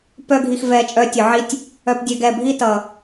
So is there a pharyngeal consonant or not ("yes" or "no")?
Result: yes